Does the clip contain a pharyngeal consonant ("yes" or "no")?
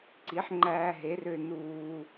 yes